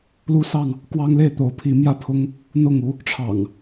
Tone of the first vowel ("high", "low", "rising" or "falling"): high